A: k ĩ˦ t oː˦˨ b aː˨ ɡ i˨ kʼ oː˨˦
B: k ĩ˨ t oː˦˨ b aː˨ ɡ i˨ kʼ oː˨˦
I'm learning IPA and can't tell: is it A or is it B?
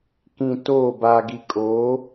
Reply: B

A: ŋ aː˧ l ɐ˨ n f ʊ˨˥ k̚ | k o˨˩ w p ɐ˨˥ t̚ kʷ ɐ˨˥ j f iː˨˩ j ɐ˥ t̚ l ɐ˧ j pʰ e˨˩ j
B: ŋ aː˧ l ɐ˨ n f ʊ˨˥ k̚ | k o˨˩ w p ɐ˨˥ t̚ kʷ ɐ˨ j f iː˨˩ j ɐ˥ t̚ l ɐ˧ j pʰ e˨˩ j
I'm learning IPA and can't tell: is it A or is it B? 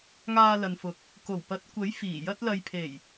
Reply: A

